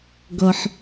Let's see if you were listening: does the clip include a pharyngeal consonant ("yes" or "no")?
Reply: yes